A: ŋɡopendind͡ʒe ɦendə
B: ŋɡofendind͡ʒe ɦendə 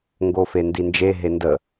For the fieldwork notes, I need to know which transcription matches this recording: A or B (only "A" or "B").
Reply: B